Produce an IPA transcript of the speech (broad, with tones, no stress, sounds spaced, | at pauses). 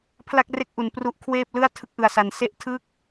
pʰ l a˥˩ k̚ r e˥˩ k̚ ʔ u˩˦ n p r u˦˥ ʔ kʰ w eː˥˩ p̚ l ɯ˥˩ a̯ tʰ ɯ˥˩ k̚ ʔ ɯ˧ a̯ s a˧ n s e˥˩ ʔ tʰ ɯ˥˩ k̚